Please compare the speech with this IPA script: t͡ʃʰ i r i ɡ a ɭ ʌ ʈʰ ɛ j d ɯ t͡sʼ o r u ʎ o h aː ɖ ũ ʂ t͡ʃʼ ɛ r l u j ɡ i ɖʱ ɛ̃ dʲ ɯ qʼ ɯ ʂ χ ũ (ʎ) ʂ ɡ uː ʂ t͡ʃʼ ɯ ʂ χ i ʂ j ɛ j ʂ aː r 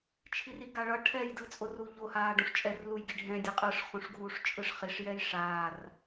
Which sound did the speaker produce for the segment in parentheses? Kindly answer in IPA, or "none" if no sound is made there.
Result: none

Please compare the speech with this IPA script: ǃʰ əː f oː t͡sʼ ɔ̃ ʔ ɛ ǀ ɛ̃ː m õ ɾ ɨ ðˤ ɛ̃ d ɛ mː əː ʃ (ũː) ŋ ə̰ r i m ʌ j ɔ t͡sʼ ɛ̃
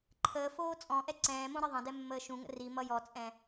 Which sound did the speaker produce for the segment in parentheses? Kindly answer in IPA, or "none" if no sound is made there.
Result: ũ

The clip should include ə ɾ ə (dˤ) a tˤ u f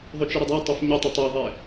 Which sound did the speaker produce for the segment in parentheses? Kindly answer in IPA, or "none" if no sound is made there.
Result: dˤ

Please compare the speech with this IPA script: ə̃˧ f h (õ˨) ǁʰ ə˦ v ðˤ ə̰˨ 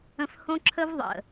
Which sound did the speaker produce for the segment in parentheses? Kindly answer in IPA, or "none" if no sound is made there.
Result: õ˦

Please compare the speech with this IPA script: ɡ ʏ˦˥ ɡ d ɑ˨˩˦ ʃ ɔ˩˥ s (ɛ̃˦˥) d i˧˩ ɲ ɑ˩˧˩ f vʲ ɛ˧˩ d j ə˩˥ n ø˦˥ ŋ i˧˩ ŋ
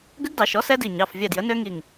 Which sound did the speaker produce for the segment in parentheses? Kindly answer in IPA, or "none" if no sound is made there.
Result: ɛ˦˥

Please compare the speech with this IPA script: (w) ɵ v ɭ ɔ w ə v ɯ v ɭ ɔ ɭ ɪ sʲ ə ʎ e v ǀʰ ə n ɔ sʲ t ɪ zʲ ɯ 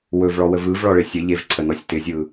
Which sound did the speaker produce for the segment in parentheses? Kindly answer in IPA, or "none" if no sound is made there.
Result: w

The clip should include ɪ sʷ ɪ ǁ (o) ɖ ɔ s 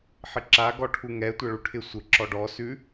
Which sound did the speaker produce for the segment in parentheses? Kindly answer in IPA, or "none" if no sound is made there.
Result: ɔ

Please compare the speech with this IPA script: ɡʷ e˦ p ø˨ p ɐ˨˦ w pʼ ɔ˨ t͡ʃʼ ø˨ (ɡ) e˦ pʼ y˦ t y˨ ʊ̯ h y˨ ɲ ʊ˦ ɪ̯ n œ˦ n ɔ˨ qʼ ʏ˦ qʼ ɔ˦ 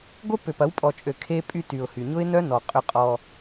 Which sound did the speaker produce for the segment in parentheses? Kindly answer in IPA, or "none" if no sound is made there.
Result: kʰ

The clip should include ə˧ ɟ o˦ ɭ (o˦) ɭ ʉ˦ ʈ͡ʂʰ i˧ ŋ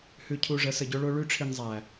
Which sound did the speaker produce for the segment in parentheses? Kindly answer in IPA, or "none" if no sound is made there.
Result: o˦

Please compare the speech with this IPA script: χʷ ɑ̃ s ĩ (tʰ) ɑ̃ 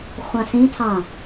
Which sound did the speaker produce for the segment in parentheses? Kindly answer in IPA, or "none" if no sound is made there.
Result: tʰ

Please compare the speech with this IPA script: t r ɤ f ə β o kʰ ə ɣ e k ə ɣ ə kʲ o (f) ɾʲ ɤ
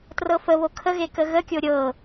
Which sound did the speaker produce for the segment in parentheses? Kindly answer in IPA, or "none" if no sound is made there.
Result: none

